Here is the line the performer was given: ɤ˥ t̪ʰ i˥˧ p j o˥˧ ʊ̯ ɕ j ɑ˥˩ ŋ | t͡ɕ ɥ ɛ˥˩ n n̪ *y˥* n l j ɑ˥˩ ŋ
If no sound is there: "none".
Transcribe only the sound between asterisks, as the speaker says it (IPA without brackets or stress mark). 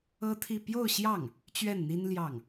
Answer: i˥